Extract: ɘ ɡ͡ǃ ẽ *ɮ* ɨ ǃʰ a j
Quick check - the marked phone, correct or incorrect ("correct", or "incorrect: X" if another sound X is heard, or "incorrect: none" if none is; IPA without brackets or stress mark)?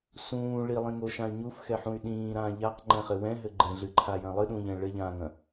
correct